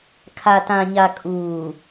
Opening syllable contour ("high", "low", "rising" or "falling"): low